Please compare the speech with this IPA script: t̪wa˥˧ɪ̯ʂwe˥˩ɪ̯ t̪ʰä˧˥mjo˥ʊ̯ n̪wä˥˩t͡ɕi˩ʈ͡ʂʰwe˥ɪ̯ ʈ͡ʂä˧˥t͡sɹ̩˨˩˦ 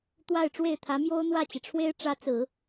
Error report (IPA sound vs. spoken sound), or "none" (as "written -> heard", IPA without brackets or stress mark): ʂ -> ʈ͡ʂ